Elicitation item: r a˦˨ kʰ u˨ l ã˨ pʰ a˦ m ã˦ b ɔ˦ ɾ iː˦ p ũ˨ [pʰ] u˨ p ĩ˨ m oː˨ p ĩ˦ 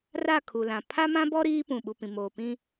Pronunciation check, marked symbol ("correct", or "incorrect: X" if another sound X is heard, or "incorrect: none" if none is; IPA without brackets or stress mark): incorrect: ɓ